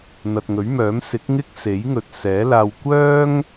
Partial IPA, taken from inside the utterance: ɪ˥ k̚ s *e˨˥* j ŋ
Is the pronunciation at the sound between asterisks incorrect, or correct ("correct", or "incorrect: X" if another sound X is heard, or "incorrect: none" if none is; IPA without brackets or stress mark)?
correct